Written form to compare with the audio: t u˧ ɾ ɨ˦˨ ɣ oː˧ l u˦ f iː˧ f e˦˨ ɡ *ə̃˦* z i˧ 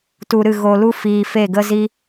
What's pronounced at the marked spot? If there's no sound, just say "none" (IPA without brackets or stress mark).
ə˦